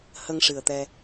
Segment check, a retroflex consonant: present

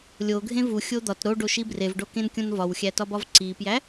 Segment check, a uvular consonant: absent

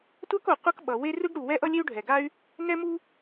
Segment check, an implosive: present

